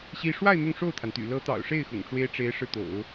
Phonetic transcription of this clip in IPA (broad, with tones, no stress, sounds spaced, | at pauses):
ɕ i˥ ʂ w a˥˧ ɪ̯ n̪ ʊ˥˧ ŋ ʂ o˥˩ ʊ̯ t̪ʰ a˩ n t̪ y̰˨˩ l ɤ˧˥ t̪ ɑ̰˨˩ ʊ̯ ʂ e˥˩ ɪ̯ x ʊ̰˨˩ ŋ ʈ͡ʂ w e˥ ɪ̯ ʈ͡ʂ e˧˥ ɪ̯ ʂ ɻ̩˥˩ t̪ o̰˨˩˦ ʊ̯